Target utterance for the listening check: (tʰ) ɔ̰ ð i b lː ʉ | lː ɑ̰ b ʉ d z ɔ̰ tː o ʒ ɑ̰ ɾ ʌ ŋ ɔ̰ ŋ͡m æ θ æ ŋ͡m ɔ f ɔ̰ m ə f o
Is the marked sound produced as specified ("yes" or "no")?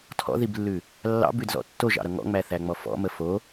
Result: yes